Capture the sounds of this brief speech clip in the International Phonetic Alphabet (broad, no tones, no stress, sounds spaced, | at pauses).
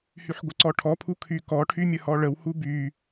h y ħ ɡʷ ə ǀ ɔ ʈʰ ɔ pʰ u kʰ y k ɔ ʈʰ y mʲ ə h ɔ ɭ ə w h u b y